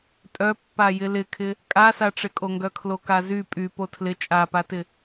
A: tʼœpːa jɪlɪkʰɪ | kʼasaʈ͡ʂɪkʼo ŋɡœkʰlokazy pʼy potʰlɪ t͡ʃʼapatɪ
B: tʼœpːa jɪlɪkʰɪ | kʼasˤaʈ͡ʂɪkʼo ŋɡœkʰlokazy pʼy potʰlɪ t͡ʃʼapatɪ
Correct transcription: A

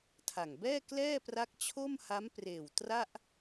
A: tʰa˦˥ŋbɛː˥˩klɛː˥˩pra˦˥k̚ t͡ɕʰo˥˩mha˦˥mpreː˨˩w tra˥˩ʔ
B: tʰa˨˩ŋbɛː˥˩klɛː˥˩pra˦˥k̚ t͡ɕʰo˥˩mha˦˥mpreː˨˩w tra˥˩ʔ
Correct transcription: B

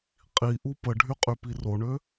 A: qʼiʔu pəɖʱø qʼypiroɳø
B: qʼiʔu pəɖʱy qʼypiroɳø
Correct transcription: B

